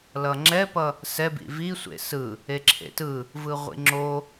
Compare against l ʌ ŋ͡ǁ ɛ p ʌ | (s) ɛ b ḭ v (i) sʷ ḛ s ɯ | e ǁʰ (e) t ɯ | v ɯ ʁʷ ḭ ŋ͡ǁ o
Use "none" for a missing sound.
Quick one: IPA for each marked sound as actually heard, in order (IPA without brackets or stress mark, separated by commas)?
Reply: s, i, ḛ